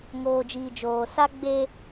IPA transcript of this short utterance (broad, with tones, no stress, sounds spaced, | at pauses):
ŋ oː˨ d͡ʒ iː˨ d͡ʒ oː˨ s a˦ ɡ͡b e˦